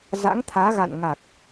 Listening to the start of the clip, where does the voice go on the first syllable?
rising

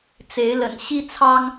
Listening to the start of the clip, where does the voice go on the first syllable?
rising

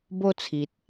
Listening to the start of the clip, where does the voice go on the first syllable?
high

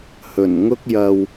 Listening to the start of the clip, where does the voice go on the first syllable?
low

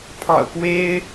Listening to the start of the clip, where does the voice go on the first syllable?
low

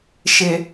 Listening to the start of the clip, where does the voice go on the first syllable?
low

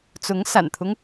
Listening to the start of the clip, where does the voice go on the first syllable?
rising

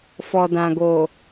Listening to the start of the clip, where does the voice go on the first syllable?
low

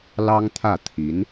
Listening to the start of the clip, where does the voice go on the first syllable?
high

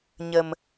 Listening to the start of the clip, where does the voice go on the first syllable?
low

